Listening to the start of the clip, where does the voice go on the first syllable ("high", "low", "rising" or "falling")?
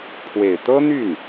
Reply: low